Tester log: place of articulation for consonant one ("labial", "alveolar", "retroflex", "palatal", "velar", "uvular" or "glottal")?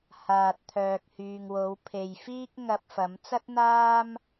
glottal